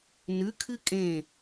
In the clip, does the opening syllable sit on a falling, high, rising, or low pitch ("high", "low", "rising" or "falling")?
rising